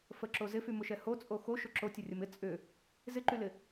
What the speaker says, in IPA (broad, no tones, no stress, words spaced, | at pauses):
fəǁo zɪfymʊʃɛ hot͡sʼo xoʃʊ ǁotʲərʲəm ɪ t͡sʼʏ | zɪǃylɪ